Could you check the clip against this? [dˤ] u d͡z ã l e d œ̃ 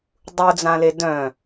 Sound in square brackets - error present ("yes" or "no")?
no